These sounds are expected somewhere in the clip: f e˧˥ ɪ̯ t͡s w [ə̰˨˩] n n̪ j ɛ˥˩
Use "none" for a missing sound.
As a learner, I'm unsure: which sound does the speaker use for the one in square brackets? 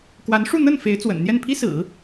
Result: ə̰˨˩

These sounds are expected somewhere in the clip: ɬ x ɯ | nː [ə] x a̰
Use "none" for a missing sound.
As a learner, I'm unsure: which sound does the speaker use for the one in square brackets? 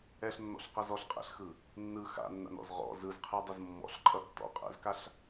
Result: ɯ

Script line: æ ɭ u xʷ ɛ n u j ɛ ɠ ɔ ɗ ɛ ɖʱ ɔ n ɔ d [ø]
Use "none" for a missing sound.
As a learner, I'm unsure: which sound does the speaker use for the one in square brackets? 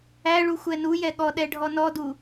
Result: u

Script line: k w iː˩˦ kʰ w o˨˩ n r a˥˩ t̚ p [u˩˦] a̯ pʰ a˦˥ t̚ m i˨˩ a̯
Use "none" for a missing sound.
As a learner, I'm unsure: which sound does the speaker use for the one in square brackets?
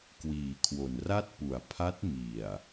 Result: u˩˦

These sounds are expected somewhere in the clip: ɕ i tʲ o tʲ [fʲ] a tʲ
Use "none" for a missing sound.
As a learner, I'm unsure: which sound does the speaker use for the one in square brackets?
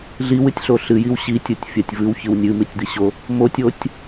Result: fʲ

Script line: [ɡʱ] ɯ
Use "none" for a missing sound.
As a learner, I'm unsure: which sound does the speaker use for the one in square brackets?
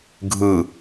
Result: ɡʱ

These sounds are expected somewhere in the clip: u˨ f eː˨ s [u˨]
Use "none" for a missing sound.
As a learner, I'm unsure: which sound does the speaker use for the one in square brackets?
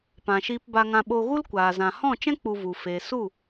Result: u˦˨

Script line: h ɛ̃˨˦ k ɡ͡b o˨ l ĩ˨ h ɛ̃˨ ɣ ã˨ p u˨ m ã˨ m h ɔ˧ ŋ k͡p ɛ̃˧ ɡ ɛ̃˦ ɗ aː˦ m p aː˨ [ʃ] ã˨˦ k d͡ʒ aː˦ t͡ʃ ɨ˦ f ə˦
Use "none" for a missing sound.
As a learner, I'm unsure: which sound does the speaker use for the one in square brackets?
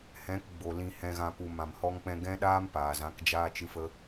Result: z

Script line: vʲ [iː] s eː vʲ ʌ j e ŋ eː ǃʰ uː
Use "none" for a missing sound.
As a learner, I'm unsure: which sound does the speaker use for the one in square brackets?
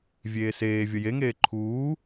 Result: eː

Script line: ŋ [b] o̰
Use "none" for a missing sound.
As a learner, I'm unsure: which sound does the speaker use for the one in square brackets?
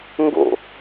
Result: ɡ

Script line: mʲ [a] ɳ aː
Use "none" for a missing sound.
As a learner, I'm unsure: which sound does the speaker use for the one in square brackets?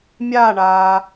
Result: aː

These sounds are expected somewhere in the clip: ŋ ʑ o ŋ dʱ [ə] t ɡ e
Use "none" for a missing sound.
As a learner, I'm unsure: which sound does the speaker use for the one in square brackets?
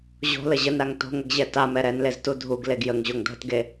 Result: ə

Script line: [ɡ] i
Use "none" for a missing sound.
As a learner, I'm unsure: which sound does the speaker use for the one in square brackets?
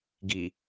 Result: ɡ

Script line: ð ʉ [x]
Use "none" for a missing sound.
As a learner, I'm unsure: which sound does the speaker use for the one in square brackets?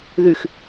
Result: x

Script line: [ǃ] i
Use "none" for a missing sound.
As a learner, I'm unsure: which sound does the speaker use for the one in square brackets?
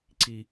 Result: ǀ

